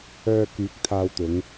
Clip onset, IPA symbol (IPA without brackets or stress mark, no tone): œː